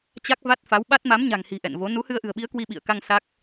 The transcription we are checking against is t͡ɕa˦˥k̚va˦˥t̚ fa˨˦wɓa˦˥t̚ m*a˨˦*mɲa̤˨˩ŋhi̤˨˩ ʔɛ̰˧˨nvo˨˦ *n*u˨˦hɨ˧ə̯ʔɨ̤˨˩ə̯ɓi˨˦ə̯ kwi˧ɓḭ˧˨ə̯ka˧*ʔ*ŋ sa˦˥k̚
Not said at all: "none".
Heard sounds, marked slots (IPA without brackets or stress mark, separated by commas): a˨˦, n, none